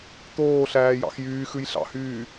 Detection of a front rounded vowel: present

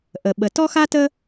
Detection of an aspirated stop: absent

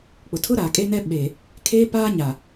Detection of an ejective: present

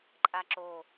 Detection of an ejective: present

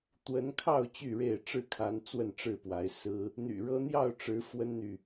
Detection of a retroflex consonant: present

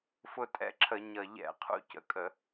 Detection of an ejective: present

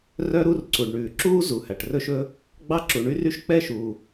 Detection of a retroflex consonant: present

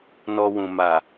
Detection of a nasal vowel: present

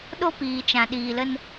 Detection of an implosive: present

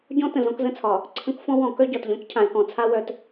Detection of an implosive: absent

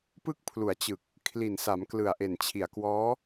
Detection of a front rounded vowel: absent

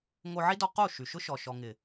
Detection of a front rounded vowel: present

